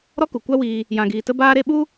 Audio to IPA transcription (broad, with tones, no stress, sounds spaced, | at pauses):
ɾ ɔ˦ k u˨ kʷ a˦ w iː˧ | j ã˧ ɡ iː˧ t ə˦ b aː˦ ɾ e˦ ɓ u˦